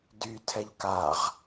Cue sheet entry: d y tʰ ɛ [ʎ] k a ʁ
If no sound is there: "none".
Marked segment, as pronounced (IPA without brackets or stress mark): ʎ